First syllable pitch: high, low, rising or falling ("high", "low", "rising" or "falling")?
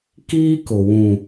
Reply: high